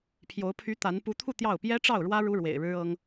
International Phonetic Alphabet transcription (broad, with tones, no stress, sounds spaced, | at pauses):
pʰ j o˧˥ ʊ̯ pʰ y˧˥ t̪ a˧˥ n p u˧˥ t̪ʰ u˥˧ t̪ j ɑ˥˩ ʊ̯ p j ɛ˥ ʈ͡ʂ ɑ˥˩ ʊ̯ ɻ w ä˥ ɻ u˥ ɻ w ḛ˨˩ ɪ̯ ɻ ɻ̩˥ ɤ˥ ŋ